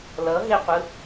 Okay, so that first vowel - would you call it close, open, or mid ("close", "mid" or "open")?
mid